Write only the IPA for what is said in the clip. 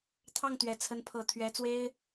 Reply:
t̪ʰɑ˥˩ŋt̪ɥɛ˨˩ t͡sʰə˧˥npʰɤ˨˩ t̪ʰɥɛ˧˥t͡swe˥ɪ̯

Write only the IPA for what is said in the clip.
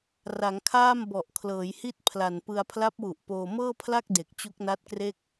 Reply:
ra˩˦ŋkʰaː˥˩m bɔ˨˩ʔkʰlɤː˩˦jhi˥˩t̚ pʰla˨˩npɯ˧a̯ pʰla˦˥p̚wu˨˩ʔ poː˧ mɤː˥˩pʰla˥˩k̚ de˨˩k̚t͡ɕu˦˥k̚na˦˥t̚kre˥˩k̚

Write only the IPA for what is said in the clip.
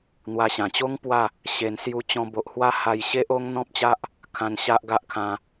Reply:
n̪wa˧ɕã˨˩ t͡ɕo˦ŋ pwa˥˧ | ɕe˨˩n sju˧t͡ɕɔ̃˧bo˨ʔ hwa˦ha˧jɕe˦ʔo˦ŋ n̪ɔ̃˦p̚t͡ɕa˦ʔ | kʰã˧nɕa˦ʔɡa˦ʔkʰã˧

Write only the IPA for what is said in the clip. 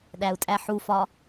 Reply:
ɗæu̯tʼæħufɒ

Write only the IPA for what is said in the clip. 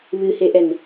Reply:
βɨheʔɛn

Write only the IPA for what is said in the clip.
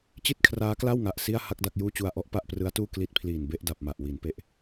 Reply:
t͡ɕi˥˩t̚kʰraː˦˥kla˥˩wŋa˨˩ʔ si˥˩a̯ ha˥˩k̚da˥˩k̚ juː˥˩t͡ɕu˧a̯ʔɔ˦˥ʔ pa˥˩ʔprɯ˦˥a̯tuː˥˩ kli˦˥t̚pʰliː˨˩n be˥˩ʔda˨˩p̚ma˨˩ʔ wi˩˦npe˦˥ʔ

